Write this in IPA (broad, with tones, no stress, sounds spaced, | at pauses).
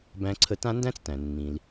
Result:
b æ̃˥ ǀʰ ə˥ t ã˥ n d æ̃˥ t͡s t æ̃˩ nː ĩ˩ l